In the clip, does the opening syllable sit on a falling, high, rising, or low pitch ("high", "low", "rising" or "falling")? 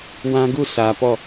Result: high